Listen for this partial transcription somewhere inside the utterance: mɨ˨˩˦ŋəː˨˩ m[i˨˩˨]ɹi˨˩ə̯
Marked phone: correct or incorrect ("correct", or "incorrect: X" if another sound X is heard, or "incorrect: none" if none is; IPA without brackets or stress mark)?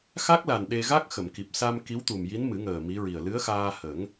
incorrect: i˧˥